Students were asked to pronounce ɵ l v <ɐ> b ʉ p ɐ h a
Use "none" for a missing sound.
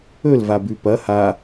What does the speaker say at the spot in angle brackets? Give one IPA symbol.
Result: a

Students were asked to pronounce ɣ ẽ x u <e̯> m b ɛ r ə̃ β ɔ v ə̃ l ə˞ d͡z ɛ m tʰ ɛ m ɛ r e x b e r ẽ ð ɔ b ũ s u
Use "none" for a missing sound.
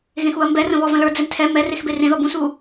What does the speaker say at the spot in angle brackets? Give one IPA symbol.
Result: ɐ̯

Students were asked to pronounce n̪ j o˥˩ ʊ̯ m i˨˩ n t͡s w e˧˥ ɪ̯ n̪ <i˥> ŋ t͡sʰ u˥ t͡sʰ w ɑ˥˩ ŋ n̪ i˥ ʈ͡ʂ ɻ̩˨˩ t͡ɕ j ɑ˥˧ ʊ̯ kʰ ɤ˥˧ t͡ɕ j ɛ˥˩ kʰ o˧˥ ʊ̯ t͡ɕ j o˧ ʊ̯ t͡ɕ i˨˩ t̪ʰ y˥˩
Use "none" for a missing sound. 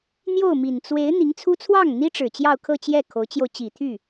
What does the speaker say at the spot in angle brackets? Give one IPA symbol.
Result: i˧˥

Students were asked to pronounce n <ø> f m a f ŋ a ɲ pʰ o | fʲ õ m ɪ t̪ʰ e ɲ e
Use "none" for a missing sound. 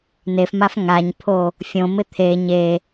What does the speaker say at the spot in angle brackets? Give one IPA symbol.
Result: e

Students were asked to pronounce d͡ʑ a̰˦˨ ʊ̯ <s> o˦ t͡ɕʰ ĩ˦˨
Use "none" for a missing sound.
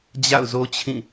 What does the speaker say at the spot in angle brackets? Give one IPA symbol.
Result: z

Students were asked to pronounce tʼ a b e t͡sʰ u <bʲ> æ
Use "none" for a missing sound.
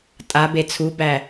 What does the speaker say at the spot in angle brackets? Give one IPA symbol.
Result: b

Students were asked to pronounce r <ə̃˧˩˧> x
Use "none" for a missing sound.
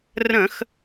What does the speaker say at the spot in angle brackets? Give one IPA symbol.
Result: ə̃˧˩˧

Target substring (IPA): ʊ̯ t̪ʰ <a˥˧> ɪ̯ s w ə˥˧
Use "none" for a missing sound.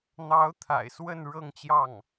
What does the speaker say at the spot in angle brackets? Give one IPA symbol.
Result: a̰˨˩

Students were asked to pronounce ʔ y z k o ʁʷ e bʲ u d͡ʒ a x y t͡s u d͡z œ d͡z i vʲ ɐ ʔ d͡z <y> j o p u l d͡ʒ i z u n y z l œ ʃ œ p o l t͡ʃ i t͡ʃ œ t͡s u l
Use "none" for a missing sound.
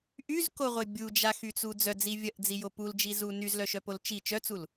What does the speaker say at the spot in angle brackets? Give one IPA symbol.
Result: i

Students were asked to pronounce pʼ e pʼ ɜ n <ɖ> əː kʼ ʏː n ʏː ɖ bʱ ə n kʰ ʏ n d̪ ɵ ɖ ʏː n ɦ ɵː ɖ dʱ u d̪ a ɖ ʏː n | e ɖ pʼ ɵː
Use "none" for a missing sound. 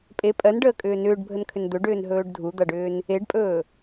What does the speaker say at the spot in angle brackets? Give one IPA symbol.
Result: ɖ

